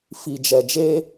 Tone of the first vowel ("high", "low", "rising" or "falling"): low